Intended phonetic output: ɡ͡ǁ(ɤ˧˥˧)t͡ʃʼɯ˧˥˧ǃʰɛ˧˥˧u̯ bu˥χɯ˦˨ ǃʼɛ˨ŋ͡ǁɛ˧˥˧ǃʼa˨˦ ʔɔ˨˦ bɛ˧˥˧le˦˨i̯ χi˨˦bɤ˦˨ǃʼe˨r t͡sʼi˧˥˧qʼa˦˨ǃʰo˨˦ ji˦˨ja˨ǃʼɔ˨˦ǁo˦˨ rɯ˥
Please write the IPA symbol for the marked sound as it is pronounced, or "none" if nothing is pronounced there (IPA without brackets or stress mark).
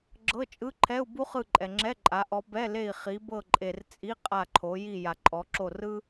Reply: ɤ˧˥˧